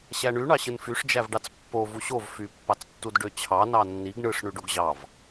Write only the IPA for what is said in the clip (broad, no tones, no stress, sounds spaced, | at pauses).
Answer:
ɕ æ ɳ y ɳ ɑ ɕ ɯ n f y ʂ d͡ʒ æ v ɖ ɑ t͡s pː o v u ɕ o v f y pː ɑ t͡s tː u d ɖ ø t͡ɕʰ ɑ n ɑ nː i ɡ ɳ ɯ ʂ ɳ y ɖ o ɡ ʑ ɑ v